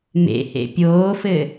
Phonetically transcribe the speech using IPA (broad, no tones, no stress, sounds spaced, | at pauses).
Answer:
m ḛ h ḛ pʲ oː f ɘː